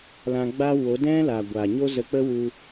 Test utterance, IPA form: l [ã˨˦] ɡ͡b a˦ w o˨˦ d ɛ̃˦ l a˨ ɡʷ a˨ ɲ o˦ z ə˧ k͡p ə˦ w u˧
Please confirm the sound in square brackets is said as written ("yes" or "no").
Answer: no